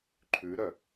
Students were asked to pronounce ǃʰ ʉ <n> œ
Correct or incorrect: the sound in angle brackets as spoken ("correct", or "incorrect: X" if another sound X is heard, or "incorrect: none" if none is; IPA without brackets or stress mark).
incorrect: ɾ